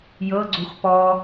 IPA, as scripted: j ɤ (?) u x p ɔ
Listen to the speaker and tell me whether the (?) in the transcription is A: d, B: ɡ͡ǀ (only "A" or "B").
B